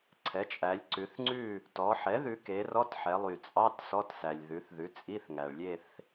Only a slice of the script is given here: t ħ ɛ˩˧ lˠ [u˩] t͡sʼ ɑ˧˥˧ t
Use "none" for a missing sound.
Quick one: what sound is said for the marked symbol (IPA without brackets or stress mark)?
y˩